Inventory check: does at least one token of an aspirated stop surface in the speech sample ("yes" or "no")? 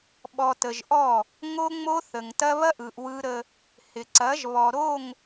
no